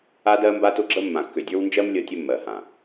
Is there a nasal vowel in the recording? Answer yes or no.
yes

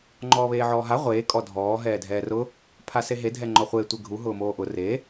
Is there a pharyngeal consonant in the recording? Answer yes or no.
yes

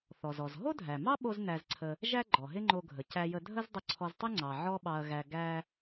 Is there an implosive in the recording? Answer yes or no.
yes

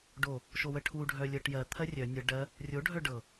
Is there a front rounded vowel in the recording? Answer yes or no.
yes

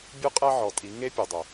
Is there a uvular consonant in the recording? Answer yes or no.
yes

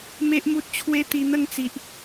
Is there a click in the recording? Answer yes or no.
no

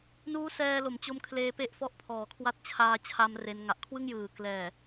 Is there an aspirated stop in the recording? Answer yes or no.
yes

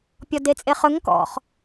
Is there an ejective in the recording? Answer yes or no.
yes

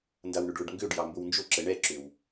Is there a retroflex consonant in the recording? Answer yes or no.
yes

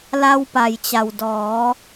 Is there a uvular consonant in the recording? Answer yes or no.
no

